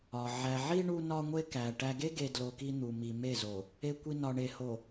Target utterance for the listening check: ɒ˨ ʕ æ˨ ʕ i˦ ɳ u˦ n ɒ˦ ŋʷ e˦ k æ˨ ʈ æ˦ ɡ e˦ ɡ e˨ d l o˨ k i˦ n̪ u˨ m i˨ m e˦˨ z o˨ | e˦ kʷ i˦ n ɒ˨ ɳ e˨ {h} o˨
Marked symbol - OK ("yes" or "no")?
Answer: yes